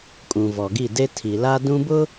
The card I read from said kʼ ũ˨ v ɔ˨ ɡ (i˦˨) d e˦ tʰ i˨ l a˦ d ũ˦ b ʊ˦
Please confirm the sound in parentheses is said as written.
yes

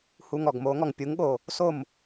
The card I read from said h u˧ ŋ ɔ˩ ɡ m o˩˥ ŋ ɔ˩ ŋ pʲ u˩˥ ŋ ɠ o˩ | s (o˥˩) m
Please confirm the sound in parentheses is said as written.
yes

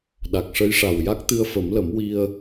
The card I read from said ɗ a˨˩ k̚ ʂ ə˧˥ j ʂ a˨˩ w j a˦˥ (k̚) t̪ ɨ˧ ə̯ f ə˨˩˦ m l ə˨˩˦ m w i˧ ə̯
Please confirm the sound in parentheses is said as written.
yes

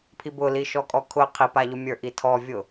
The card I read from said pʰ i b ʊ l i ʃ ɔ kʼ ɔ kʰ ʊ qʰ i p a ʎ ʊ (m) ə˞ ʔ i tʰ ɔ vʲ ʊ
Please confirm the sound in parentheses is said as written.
no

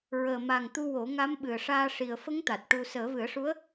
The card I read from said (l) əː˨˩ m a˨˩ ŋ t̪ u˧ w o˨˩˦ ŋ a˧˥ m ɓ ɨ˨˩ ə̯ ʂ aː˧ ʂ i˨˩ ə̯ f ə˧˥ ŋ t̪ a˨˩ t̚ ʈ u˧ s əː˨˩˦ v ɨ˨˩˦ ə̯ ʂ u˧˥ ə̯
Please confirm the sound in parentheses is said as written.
no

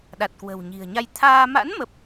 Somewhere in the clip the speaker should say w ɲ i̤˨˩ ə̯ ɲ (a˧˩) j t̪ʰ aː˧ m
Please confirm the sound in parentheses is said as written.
no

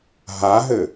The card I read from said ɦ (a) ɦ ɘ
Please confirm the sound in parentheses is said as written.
yes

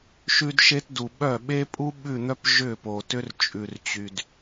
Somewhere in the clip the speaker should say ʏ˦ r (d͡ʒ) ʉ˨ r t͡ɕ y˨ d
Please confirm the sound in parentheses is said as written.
no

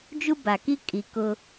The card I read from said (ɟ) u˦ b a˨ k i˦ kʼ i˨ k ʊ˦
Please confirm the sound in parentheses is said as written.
no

